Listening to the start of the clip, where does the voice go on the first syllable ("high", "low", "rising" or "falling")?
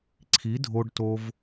rising